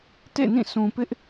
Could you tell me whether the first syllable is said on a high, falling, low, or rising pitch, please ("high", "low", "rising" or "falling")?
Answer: falling